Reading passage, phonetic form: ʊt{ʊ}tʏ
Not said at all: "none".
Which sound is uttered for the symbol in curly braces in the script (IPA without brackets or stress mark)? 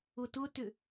ʊ